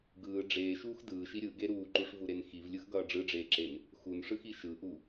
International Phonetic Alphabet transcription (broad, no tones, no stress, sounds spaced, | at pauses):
ɡ ɯː ɖ͡ʐ eː ʃ uː x d ɯː ʃ i ɾʲ ɯ ɡ e ɾ uː ǃ u ʂ v u ɾ e n x i v lʲ ɯ x ɡ ʌː ɖ͡ʐ ɯ ɖ͡ʐ eː ǁ e n | x u n ʂ ɯ x i ʃ ɯ ʔ u